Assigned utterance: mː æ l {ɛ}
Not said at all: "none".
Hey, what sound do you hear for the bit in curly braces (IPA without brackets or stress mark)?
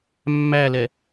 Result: ɛ